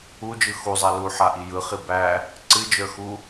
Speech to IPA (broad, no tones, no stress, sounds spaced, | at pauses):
u d͡ʒ ɯ x u zˤ a l u ħ a ʔ i j ɯ χ i b æ | ǀ ɨ d͡ʒ ə˞ x u